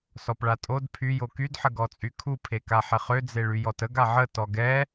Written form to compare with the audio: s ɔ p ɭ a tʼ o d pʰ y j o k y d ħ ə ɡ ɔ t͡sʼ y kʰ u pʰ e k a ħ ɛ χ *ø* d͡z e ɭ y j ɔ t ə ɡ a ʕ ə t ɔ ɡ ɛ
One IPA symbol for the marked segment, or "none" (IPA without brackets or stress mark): ø